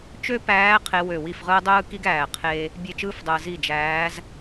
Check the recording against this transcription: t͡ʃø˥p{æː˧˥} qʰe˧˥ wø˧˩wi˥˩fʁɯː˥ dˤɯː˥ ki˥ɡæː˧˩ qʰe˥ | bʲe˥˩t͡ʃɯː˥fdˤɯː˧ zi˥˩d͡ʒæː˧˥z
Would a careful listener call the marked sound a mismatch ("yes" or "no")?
no